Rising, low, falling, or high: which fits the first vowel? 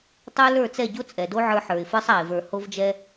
high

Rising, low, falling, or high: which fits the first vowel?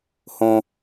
high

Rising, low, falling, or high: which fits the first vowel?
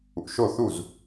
low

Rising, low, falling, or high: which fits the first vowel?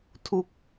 falling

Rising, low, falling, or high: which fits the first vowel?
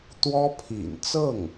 high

